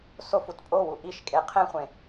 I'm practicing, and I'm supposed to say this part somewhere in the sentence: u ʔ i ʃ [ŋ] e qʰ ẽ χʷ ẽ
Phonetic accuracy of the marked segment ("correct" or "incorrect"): incorrect